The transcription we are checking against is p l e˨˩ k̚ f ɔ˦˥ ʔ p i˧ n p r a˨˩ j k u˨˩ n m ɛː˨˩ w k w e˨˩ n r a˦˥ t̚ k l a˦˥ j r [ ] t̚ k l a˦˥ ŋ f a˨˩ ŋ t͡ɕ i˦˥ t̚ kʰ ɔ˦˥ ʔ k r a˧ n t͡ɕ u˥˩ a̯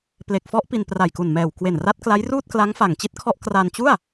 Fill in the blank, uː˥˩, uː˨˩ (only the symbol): uː˥˩